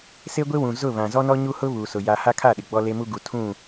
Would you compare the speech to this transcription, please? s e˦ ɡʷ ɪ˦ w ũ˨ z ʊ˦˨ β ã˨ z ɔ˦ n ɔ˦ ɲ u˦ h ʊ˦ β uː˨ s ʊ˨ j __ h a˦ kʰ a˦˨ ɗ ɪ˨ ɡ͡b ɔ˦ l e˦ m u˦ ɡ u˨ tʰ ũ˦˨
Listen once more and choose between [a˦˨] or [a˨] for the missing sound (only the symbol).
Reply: a˨